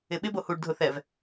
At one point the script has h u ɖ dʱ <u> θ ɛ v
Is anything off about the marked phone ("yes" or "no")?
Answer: yes